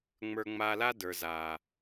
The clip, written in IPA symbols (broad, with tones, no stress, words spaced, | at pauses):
ŋ͡mə˞˧ŋ͡ma˧la˦ də˞˨za˨